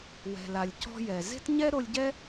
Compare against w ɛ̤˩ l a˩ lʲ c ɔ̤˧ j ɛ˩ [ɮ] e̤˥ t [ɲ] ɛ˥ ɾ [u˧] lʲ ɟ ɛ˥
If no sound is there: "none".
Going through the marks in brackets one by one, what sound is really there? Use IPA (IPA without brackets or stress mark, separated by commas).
z, ɲ, o˧